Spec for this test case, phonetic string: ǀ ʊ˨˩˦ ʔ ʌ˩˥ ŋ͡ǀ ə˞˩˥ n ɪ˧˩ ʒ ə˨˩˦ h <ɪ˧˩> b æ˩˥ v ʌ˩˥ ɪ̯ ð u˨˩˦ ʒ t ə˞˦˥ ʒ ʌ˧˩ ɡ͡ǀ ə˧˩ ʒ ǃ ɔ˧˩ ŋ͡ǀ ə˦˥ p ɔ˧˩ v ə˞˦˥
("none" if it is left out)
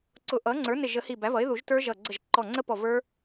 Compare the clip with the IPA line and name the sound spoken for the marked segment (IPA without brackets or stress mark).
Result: i˧˩